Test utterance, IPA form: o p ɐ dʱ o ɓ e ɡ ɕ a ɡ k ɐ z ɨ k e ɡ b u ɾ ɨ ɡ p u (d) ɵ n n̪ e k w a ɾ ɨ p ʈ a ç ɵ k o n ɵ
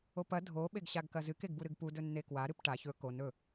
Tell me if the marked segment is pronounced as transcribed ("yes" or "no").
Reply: yes